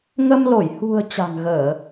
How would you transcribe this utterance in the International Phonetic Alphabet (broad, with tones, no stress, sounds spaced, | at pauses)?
ŋ ə˧ m l o˧˩ j h ṳ˨˩ ə̯ t͡ɕ a̤˨˩ ŋ ɣ əː˧˩˨